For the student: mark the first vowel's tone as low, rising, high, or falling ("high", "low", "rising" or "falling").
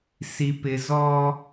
low